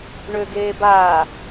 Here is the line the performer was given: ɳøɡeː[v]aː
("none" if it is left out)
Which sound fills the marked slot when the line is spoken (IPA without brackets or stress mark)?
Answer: b